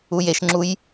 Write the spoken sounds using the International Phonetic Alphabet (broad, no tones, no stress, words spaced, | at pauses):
ujeʃŋ͡ǁuj